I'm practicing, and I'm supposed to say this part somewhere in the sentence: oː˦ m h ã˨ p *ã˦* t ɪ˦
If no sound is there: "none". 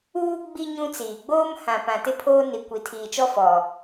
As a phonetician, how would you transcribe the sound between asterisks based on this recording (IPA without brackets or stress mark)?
ã˨